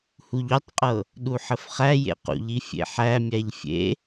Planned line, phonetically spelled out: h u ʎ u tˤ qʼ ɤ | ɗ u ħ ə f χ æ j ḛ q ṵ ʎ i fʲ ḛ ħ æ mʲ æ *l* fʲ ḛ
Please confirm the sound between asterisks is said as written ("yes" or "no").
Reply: no